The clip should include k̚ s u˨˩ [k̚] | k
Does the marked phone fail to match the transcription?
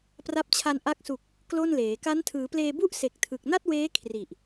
no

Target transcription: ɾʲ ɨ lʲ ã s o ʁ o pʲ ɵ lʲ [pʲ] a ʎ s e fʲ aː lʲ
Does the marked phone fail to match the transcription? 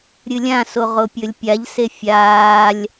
no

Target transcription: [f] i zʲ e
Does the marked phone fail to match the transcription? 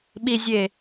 yes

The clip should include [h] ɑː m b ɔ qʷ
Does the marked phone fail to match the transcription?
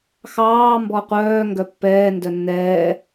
yes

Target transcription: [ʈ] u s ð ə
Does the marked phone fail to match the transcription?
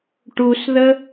no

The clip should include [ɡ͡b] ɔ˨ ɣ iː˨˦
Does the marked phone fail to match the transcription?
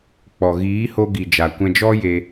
yes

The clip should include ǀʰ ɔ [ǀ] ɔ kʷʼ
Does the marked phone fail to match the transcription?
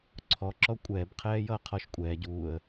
yes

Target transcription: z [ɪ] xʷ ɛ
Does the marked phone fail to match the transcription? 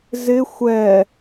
no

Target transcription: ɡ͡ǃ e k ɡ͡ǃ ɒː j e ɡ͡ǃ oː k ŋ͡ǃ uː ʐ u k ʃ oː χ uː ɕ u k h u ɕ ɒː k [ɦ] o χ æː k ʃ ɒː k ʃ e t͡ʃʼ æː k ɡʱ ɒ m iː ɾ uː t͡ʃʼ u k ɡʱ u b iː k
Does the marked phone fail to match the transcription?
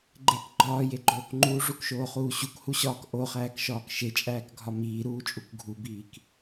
yes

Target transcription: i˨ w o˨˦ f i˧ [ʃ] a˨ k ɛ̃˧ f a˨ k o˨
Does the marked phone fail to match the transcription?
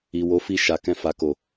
no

